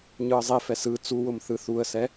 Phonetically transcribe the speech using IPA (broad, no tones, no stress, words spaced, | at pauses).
ɲɯə̯zˤifɛs ɯ t͡suwʊm θɯθuə̯sɛ